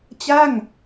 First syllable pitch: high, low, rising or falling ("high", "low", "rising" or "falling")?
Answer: falling